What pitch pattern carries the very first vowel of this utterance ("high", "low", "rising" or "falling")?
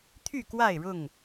falling